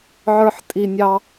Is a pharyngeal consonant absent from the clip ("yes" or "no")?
no